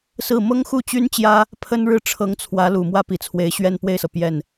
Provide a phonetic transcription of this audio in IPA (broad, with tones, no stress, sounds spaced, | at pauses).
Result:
s ɹ̩˥˩ m ɤ˥ ŋ x u˥˩ t͡ɕ y˥ n t͡ɕ j ä˥ | pʰ ə˥ n ɻ ɻ̩˥ ʈ͡ʂʰ ɤ˧˥ ŋ t͡sʰ w ä˧˥ l u˨˩ m w ä˥ p i˨˩ t͡sʰ w e˧˥ ɪ̯ ɕ ɥ ɛ˥˧ n p w e˥˩ ɪ̯ s ɤ˩ p j ɛ˥˩ n